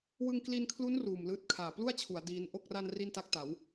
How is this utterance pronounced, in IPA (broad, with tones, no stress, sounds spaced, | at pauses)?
w ɯ˧ ŋ k l i˧ n kʰ l u˦˥ n r uː˨˩ m l ɯː˦˥ t̚ kʰ aː˨˩ p l u˥˩ a̯ t͡ɕʰ u˩˦ a̯ d iː˦˥ n ʔ o˥˩ k̚ r a˧ n r i˥˩ n t a˥˩ k̚ t a˩˦ w